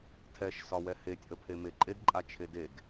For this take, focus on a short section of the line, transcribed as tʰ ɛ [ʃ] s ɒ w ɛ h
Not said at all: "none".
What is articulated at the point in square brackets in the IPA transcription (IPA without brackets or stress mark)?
ʃ